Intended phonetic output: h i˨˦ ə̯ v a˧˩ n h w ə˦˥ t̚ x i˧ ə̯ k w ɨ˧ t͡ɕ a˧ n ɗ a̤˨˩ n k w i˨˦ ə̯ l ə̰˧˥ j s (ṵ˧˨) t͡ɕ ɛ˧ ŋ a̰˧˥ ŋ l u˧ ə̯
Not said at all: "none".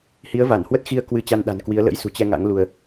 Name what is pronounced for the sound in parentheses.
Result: ṳ˨˩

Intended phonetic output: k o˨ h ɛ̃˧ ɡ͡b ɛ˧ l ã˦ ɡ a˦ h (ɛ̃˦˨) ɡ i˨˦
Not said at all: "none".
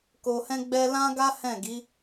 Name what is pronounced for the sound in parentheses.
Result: ɛ̃˦˨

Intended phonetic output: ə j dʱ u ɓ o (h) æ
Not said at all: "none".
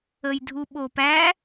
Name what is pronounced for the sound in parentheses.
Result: p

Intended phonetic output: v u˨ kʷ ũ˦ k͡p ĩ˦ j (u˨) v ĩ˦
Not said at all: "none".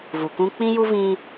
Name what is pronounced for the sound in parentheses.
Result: u˦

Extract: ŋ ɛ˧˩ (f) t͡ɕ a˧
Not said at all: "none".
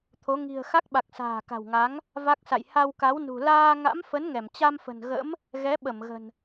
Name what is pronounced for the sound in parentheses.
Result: m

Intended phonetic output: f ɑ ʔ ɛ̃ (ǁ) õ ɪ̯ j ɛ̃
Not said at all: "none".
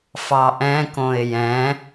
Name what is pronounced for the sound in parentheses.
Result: k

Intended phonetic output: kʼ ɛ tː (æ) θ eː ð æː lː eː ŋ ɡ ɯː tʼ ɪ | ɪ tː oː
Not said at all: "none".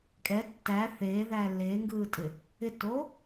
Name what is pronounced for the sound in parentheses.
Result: æ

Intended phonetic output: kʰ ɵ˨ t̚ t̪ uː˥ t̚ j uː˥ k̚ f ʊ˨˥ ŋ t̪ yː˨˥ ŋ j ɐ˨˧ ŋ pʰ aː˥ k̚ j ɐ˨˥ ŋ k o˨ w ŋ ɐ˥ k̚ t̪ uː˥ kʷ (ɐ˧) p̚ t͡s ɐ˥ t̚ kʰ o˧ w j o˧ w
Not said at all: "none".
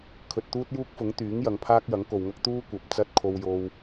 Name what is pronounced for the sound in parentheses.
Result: ɐ˨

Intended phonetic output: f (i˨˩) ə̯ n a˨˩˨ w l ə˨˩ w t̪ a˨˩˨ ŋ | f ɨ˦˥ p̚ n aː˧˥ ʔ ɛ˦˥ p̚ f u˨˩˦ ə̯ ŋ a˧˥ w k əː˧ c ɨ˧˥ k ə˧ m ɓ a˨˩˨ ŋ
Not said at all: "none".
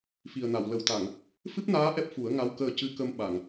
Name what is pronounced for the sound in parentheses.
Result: i˨˩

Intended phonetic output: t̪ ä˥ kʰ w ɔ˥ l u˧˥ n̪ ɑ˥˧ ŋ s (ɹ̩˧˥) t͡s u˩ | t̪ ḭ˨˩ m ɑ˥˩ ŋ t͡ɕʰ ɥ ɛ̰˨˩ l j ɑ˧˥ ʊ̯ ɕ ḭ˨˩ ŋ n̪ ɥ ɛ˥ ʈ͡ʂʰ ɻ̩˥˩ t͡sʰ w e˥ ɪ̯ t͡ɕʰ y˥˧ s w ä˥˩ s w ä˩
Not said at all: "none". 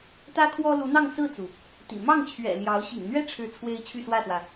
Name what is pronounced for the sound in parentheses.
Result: ɹ̩˥˩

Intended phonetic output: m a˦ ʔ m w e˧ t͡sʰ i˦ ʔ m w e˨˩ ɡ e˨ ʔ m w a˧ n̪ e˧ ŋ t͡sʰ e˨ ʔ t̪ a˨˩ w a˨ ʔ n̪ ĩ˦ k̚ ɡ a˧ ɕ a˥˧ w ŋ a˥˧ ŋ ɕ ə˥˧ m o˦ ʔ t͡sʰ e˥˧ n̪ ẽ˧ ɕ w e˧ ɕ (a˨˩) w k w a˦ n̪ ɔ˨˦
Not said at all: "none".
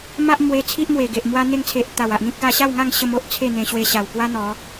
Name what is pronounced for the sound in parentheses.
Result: a˨˩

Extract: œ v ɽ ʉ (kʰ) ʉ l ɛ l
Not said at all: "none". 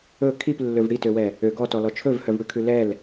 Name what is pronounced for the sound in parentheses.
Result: kʰ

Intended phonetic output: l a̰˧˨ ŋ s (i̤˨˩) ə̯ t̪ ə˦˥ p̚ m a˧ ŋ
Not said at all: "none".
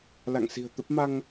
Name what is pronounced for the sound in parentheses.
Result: i̤˨˩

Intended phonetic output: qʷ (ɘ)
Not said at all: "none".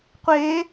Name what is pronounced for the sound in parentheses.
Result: e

